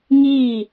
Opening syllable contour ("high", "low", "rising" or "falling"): falling